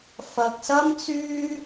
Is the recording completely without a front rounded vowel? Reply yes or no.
no